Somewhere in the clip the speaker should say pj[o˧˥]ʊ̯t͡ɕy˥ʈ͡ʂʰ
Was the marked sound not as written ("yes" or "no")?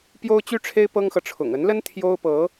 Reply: yes